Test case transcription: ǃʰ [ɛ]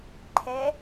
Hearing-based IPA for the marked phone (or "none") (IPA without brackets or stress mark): ɛ